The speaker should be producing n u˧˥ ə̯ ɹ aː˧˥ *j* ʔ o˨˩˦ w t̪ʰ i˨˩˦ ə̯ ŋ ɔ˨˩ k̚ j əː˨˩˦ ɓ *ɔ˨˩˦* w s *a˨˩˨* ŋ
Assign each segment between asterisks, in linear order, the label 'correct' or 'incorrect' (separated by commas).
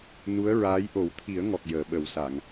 correct, incorrect, correct